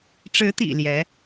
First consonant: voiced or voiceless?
voiceless